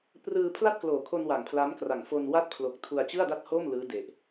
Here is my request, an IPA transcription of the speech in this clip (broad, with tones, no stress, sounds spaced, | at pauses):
p r ɯː˧ pʰ l a˥˩ t̚ k l oː˨˩ kʰ o˧ n w a˨˩ ŋ pʰ l a˦˥ m k r a˨˩ ŋ f o˧ n w a˥˩ t̚ pʰ l o˨˩ k̚ tʰ u˧ a̯ t͡ɕ ɯ˥˩ a̯ d a˥˩ t̚ h o˥˩ m l ɯː˦˥ d e˨˩ ʔ